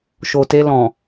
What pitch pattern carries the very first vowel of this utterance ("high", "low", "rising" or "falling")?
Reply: low